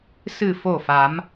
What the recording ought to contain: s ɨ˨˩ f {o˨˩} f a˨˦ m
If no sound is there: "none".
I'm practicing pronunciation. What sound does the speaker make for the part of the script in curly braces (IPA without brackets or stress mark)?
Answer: o˨˩